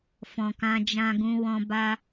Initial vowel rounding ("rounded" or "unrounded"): rounded